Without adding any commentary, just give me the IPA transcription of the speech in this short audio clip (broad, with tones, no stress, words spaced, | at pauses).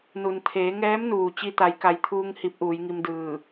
nu˩nt̪ʰeː˩˧ŋɛː˧˥mnuː˩ t͡ɕi˧t̪a˩˧jka˩˧jt̪ʰuː˧ŋ hi˧˥p̚ʔuː˩˧jŋi˧mdɯː˧˩